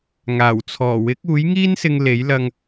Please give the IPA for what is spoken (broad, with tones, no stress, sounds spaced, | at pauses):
ŋ aː˨˩ w t͡sʰ ɔː˨˩ w ɪ˨˥ k̚ uː˨˥ j ŋ iː˥ n s ɪ˧ ŋ l e˨˥ j l ɐ˧ ŋ